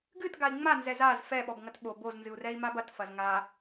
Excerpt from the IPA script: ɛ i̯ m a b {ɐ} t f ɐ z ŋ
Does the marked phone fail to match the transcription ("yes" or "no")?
no